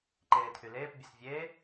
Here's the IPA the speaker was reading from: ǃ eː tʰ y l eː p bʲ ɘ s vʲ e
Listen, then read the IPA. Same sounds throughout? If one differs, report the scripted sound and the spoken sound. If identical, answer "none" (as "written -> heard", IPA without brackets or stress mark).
none